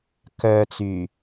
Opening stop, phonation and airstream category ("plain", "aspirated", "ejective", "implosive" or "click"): plain